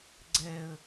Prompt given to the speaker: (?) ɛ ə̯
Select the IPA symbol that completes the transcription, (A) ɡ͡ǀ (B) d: A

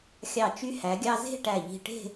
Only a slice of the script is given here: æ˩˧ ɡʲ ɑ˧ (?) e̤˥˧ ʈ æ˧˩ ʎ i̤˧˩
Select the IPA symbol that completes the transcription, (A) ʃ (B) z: B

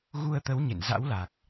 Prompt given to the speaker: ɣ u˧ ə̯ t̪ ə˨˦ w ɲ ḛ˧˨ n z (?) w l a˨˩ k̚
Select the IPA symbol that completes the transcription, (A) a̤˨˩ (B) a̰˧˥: B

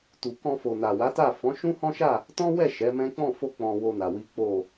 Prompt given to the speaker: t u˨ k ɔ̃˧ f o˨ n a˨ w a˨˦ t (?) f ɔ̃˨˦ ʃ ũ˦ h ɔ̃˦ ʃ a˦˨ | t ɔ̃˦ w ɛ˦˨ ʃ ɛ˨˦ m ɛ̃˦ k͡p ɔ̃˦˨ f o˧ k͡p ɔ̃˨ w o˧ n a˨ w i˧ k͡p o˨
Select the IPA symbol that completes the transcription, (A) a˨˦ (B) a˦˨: B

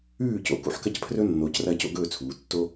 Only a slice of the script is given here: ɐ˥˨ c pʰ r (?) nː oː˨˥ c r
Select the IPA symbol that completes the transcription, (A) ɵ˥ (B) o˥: A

